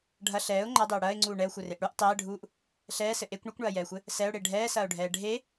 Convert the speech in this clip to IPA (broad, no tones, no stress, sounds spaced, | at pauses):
ɖʱ ɐ ɬ ɛː ʊ̯ ŋ͡ǃ ɐ dˤ e ʊ̯ ɽ ɐː ɪ̯ ŋ͡ǀ uː ɳ ɛ ʊ̯ xʷ ɘ r e ʔ ɽ u ʔ tˤ ɛː ɖʱ uː ʔ | ɬ ɛː s ɘ ʔ e kʷ ɳ ɨ kʷ ɳ ɐː j ɛː xʷ ɘ | s ɛ ʊ̯ ɽ e ɖʱ ɛː s ɐː ʊ̯ ɖʱ ɛː ɖʱ e